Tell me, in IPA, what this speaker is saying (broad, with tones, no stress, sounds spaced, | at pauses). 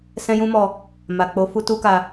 s ɛ̃˦ j ũ˦ m ɔ˧ | m a˨ k͡p o˨˦ f u˦ t u˦ k a˧